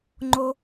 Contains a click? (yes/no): yes